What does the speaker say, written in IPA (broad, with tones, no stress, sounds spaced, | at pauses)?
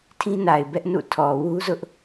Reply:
tʰ ĩ˦ n a˨ ɪ̯ b ɛ˦ ʔ n ṵ˦˨ tʰ ɔ˨ w u˦ z ʊ˦ ʔ